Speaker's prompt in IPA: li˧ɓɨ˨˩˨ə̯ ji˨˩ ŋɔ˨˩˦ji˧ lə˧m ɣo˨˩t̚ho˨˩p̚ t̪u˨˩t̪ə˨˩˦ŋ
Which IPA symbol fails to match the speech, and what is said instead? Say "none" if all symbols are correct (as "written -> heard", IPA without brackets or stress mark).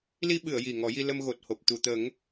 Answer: none